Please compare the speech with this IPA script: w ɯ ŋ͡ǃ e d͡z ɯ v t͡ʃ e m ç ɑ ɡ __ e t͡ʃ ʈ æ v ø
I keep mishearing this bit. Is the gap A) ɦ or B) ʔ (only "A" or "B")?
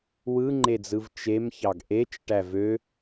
B